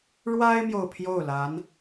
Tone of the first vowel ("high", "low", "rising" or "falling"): high